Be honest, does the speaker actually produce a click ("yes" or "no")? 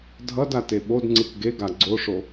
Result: yes